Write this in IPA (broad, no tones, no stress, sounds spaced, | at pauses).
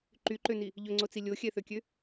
ǃ y ǃ ø n i | ʎ ɵ ŋ͡ǀ o t͡s i lʲ o xʲ ɛ θ ø kʲ ø